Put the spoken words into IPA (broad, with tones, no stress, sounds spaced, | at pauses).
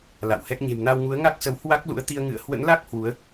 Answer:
l a̰˧˨ w h ɛ˦˥ k̚ ɲ e̤˨˩ m n a˧ w ŋ u˨˦ ə̯ ŋ a˦˥ k̚ s ə˨˦ w h w a˦˥ k̚ l ṵ˧˥ ə̯ t̪ i˧ ə̯ ŋ ɨ̰˧˨ ə̯ h w ə̰˧˥ n l a˦˥ k̚ h w u˨˦ ə̯